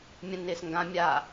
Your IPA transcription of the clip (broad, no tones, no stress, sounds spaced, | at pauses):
mʲ ə̃ n ɪː s ŋ ɡ ã mʲ a